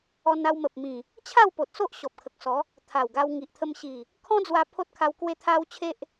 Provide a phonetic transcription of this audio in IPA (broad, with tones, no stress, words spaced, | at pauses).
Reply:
ɔ˧na˧wmə˨p̚mĩ˨˩ | t͡ɕʰa˥˧wpo˨t̚so˦ʔ ɕɔ˨p̚kʰə˨k̚sɔ˨˦ | t̪ʰa˨˩wɡa˧w ŋi˨ʔt̪ʰə˧mɕi˨˩ | kʰɔ̃˦d͡zwa˧ pʰo˦t̚kʰa˧w kwe˦t̪ʰa˦wt͡ɕʰe˦ʔ